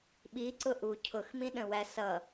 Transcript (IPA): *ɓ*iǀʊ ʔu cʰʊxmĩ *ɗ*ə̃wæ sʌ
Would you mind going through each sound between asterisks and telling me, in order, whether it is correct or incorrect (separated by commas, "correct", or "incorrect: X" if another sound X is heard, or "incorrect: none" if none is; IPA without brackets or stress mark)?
correct, correct